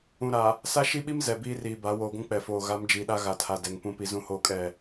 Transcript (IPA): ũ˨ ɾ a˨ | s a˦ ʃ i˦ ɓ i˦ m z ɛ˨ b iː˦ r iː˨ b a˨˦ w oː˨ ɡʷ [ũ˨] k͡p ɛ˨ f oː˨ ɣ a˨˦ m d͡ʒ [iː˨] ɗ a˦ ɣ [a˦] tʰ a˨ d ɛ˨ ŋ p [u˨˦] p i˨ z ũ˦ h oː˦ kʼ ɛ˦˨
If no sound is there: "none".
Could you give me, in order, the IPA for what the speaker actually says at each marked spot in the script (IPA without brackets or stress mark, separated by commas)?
ũ˦, iː˨, a˨, ũ˨˦